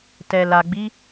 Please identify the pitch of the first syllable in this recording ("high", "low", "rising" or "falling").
low